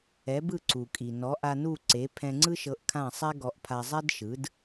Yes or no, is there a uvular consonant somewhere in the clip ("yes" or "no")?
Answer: no